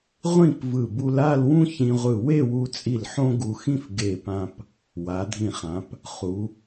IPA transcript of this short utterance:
ʁʷ ĩ˥˧ p v ɯ˧˩ b u˧ l a˥˧ l w ũ˥ ç ĩ˧ ʁʷ ɯ˧˩ w e˥˧ w u˧ t͡sʼ i˧˩ l ħ õ˥ ɡ u˧ x ĩ˥ f ɡ e˧˩ p ã˧ p | w a˩˧ dʱ ĩ˧˩ χ ã˩˧ p | χ u˩˧

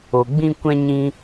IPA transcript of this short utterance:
o˨ ɡ͡b ĩ˦ kʷ ɛ̃˦ ɲ ĩ˧

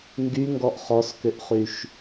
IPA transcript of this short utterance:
ŋ ɡ y ŋ ɡ ɔ ʔ χ ɔ s k ʏ ʔ χ y ʃ

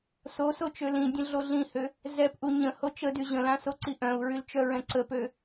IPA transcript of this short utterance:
s o s o t͡ʃ ø l ĩ dʲ ə̃ ɮ o ɮ ĩ h ø | z ɛ p ʔ u ɲ ə̃ h o t͡ʃ ə d y ʑ ə̃ l ã s o ǀ i ʔ œ̃ u̯ ɹ y l t͡ʃ œ ɹ ɛ̃ ǀ ə p ø

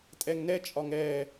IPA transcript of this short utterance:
tʼ ɛ ŋ n ɛ t͡ʃʼ ɒ ŋ ɛ

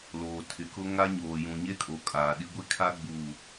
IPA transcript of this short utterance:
l oː˨ tʰ ɪ˨ k ʊ˦ ŋ a˦ ɲ oː˨ j ũ˨ ɲ e˦ kʼ o˨ kʼ aː˨ ɗ i˦ ɡʷ i˦ kʰ a˦ ɡ͡b u˨

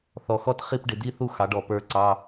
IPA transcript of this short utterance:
θ ɔ˨˩ x ɔ˥˧ t χ i˥˧ p ɖ ɪ˧˩˧ d̪ i˧˥˧ θ u˥˧ x ɑ˩˥ ɖ ɔ˨˩ p ə˞˥˧ ǀ ɑ˧˥˧

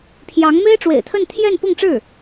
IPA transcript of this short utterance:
pʰ j ɑ˧˥ ŋ m e˥ ɪ̯ ʈ͡ʂ w ḛ˨˩ ɪ̯ t̪ʰ ə˥˧ n t̪ʰ j ɛ˥˧ n p ʊ˥˧ ŋ ʈ͡ʂ ɻ̩˥˩

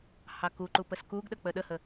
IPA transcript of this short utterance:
h ɑ k u ǃ u p ə s k u ɡ ɗ ə k͡p ə ɗ ə h ə

